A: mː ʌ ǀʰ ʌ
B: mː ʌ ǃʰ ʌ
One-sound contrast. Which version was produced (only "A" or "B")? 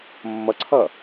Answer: A